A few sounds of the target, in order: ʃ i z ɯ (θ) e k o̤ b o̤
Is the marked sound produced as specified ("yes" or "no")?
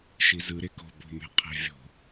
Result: no